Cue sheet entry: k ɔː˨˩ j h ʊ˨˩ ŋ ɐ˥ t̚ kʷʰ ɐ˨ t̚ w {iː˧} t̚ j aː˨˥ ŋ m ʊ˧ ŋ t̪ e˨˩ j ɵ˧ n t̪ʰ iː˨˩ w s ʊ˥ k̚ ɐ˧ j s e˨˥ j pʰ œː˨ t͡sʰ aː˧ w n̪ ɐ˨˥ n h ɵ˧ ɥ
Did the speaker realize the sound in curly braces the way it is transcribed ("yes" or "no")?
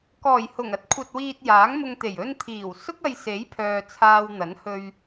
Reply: yes